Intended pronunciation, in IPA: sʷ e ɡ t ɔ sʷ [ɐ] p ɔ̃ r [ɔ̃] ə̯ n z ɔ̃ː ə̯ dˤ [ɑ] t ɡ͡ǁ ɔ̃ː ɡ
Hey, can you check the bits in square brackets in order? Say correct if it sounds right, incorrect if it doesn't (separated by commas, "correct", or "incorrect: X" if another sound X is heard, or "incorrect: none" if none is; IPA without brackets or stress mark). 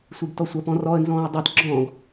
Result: correct, incorrect: ɔ, correct